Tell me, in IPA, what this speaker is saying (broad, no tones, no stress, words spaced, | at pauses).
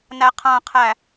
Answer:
næqʰãqʰæ